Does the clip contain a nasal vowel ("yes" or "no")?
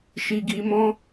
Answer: yes